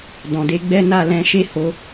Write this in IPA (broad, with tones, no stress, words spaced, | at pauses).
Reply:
dɔ̃˨de˨˦ɡ͡bɛ˦ na˦˨lɛ̃˧ʃe˦ho˧